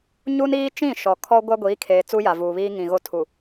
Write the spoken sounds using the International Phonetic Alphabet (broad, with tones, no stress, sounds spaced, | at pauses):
ɲ u˦ n iː˦ t͡ʃ ĩ˦˨ ʃ ɔ˨ kʰ ɔ˦ ɡʷ a˦ ɡʷ iː˨˦ kʰ eː˨ t͡s u˦ j a˨ v uː˨ β iː˦ ŋ ĩ˨ ɣ o˦ tʰ u˨